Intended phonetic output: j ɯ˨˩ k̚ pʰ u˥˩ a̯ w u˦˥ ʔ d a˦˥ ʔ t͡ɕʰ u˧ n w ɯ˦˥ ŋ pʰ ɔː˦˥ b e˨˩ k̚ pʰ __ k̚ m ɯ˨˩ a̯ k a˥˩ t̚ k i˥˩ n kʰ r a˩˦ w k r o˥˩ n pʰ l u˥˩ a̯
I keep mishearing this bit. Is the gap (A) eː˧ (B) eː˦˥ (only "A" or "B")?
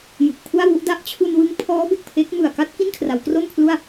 B